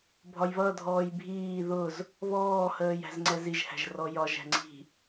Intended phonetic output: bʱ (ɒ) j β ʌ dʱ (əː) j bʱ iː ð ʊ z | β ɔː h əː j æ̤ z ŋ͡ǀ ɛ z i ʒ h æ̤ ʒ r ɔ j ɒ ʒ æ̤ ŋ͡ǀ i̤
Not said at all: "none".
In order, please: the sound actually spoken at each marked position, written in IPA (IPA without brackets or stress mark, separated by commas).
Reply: ɒ, ɔː